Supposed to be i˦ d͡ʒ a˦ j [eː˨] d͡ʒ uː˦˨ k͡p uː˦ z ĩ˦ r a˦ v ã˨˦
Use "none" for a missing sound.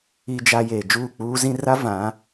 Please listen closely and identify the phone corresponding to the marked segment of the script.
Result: eː˨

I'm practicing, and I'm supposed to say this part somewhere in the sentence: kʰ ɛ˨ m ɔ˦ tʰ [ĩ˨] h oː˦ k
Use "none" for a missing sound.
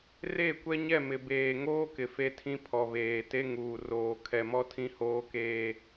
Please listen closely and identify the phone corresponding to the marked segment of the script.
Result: ĩ˦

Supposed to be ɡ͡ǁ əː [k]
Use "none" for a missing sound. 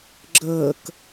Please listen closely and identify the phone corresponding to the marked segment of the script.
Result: k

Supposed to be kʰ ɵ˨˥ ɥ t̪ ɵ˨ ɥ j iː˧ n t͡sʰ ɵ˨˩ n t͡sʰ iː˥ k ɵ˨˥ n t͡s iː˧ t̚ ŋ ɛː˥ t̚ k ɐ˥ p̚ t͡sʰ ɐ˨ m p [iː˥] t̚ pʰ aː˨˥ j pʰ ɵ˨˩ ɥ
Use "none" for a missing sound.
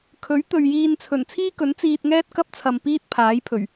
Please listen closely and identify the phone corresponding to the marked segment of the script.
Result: iː˥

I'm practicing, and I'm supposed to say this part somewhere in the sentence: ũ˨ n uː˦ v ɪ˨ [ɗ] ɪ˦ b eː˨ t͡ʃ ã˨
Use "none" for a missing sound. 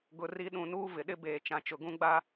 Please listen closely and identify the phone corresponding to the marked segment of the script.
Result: ɗ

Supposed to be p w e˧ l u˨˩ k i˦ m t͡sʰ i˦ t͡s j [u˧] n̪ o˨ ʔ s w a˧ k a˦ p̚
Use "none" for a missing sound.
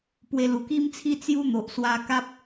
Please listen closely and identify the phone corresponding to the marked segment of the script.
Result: u˦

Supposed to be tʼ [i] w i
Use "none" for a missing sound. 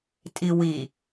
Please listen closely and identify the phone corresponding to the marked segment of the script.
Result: i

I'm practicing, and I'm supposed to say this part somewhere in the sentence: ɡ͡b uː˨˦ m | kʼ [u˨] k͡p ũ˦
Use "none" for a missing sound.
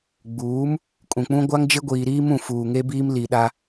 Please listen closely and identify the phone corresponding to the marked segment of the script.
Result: ũ˨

